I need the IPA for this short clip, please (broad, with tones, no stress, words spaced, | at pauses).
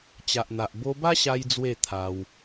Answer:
t͡ɕa˨ʔn̪a˨ʔ bo˧ba˦ ɕa˦jd͡zwe˥˧ t̪ʰa˧w